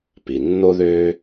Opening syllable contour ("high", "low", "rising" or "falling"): low